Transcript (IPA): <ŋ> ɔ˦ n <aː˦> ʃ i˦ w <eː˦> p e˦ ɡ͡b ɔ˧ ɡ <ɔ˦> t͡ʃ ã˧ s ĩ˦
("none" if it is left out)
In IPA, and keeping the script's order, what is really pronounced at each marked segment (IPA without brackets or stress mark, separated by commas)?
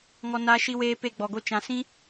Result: ŋ, aː˦, eː˦, o˦